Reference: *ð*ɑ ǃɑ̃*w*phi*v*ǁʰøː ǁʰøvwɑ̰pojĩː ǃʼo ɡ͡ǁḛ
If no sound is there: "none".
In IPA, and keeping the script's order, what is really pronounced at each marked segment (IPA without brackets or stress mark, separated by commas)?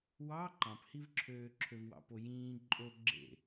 w, none, v